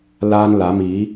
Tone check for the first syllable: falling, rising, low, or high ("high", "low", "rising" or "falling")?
high